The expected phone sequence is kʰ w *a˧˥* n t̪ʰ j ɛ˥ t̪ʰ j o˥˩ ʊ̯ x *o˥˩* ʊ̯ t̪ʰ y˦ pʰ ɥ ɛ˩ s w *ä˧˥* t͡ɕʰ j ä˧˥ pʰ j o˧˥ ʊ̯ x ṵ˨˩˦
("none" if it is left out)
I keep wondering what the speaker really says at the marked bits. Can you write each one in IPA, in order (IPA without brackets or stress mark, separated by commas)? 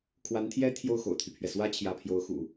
a˧˥, o̰˨˩, ä˧˥